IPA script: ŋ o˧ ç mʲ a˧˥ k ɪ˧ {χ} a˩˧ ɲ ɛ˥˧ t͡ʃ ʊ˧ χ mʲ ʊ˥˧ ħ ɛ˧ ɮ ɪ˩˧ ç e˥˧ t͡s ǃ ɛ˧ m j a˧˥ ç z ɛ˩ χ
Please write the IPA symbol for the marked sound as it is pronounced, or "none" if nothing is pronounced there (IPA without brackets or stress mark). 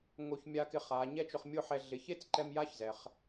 χ